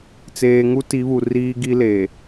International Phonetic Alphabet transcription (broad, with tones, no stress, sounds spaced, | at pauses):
t͡s eː˨ ŋ u˦ t i˨˦ β u˨ r iː˦ ɡ i˦ l eː˨